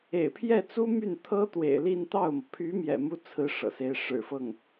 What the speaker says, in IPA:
ḛ˨˩ɪ̯pʰjɛ˥˩t͡su˥ my˥˩n t̪ʰɤ˥ t̪wḛ˨˩ɪ̯ li˥˧nt̪ɑ˥˩ʊ̯mɤ˩ pʰy˧˥ mjɛ̰˨˩mu˥t͡sʰɹ̩˧˥ ʂɤ̰˨˩se˥ɪ̯ ʂɻ̩˨˩fɤ˥˩ŋ

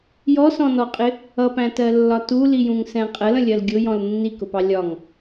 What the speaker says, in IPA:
jɔsɔ̃nɔqʼɪ | ʌpæ̃tɜlːɒ tulijũŋsɛ̃ qʼələ̃lʲɜl ɡʲʊjɔ̃l nːikʊpɑ lʲɒŋ

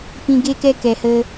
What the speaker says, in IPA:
pĩ˧ɡe˦kɛ˦ kɛ˨hə˧

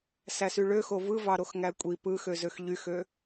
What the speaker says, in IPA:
sæsyɭøxo vɯvɑɾoxŋæ kʷʼi pɯxø zøxʎyxø

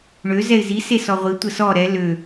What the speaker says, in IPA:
ɳø zɛɪ̯zi sesɔʁʷi tʷəsɔ ɾɛ lø

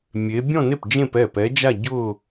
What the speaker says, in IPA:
mʲe˧˥ bʲɔ̃˥˧ne˥˩p d͡ʒẽ˥˧pɛ˥˩pɛ˧˥d͡ʒa˥˧ ɟʊ˥˧

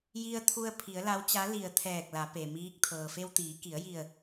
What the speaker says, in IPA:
ji˧ə̯t̪ʰu˧ə̯ pʰi˩˧ə̯la˧˥wt͡ɕa˧˥li˧˩ə̯ t̪ʰɛː˧˩k̚la˩˧ pe˩miː˧˥k̚ t̪ʰɤː˩fe˧wt̪iː˩˧ ki˩˧ə̯ji˧˩ə̯

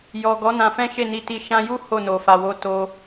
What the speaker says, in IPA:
jɔ˨ ɡɔ˨˦nã˧fɛ̃˦ ʃe˦˨ni˧ti˧ ʃã˧ju˦ ho˦˨no˨fa˨wo˨˦ to˧

